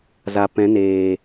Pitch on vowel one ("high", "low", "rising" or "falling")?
low